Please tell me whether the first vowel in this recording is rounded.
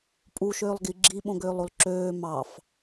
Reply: yes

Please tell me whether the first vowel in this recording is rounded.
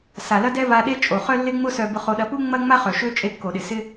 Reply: no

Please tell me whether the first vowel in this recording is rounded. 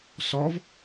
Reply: yes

